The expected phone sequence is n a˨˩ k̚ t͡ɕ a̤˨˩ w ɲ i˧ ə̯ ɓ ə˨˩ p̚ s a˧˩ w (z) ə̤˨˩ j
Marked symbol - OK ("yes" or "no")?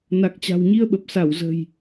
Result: yes